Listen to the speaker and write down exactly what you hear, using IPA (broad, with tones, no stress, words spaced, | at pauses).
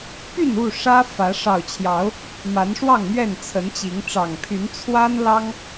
py˥˨nu˥˨ ʂä˦ fä˨˦ ʂɑ˨˩ʊ̯t͡ɕʰjɑ˨˦ʊ̯ | ma˨˦nʂwɑ˥˨ŋmɥɛ˥˨n t͡sʰə˨˦nt͡ɕi˨˦ŋ ʈ͡ʂɑ˨˩ŋpʰy˨˦n t͡sʰwa˦n lɑ˦ŋ